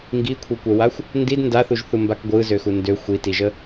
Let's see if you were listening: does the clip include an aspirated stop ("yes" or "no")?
yes